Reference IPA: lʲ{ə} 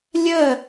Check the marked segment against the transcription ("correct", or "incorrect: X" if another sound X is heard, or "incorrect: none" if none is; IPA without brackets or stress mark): correct